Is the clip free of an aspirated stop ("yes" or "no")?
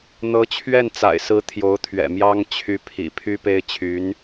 no